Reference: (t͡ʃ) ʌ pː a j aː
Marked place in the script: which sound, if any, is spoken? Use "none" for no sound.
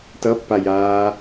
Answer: t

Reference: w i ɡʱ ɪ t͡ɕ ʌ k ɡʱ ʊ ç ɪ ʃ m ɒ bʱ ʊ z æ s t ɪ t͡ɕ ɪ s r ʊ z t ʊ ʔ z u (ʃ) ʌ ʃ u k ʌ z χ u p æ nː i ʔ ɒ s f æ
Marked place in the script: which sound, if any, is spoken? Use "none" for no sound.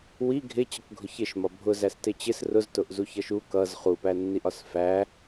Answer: ç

